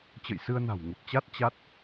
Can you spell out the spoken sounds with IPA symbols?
t͡ɕə̰˧˨jsɨ˧ə̯na̤˨˩w ŋə˨˩p̚t͡ɕa˦˥t̚ t͡ɕa˦˥t̚

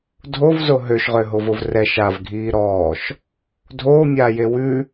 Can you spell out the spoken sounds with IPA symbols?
dʱovzo ɦøʃʁøɦovov rɛʃ avɡʱiː ɾɔːʃ | dʱoːmʲaːje wʉ

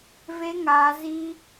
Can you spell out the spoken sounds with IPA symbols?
ve˦ ŋaː˦ ziː˦

